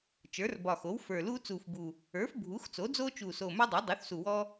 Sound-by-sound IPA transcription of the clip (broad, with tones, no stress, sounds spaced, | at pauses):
t͡ʃ ə˞˩˥ r b ɒ˨˩ x o˩˥ w f ə˞˨˩ l uː˦ t͡s uː˨˩ f b u˨˩ | ə˞˩˥ f bʱ u˩˥ x t͡s o˩˥ d͡z oː˦ t͡ʃ uː˨˩ s oː˨˩ m ə˞˦ dˤ ə˞˩˥ dˤ u˩˥ θ s u˨˩ w ɔː˦